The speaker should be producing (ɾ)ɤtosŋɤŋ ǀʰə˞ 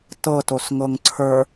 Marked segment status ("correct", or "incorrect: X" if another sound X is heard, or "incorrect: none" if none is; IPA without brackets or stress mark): incorrect: t